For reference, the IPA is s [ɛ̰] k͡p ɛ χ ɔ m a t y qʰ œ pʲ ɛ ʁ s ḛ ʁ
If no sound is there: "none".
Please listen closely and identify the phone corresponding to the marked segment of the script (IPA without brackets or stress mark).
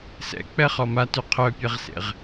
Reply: ɛ̰